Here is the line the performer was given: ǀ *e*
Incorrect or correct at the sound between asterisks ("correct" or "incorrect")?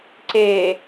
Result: correct